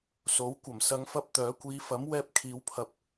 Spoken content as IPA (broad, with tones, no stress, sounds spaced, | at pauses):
s o˨˥ w kʷ ɐ˨˩ m s ɐ˨˧ ŋ f ɐ˧ p̚ t̪ œː˨˥ kʷ iː˨˧ f ɐ˨˥ m w ɛː˧ p̚ kʰ iː˨˧ w pʰ ɐ˨ p̚